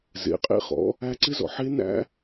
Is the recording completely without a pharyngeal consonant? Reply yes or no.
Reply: no